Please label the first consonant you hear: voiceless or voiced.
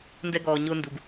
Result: voiced